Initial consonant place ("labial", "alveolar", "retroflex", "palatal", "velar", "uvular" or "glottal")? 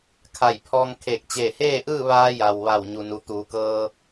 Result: velar